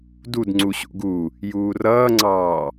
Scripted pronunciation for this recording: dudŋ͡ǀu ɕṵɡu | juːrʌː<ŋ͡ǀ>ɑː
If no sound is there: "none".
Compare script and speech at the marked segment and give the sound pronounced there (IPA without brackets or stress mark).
ŋ͡ǀ